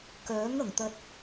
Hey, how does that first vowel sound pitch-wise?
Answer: rising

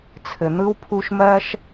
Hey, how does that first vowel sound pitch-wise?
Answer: low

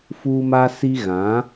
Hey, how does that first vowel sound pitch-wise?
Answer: high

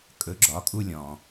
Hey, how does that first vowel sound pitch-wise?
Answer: rising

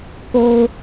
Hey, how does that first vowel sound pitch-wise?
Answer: low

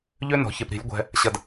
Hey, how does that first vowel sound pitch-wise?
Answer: high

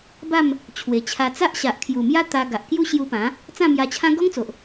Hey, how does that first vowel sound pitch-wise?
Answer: falling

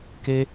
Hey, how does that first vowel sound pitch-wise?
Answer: high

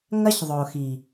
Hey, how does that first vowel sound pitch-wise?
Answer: high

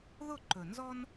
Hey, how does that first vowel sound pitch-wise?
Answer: falling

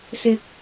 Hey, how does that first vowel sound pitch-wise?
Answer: high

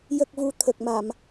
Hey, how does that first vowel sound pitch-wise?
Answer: low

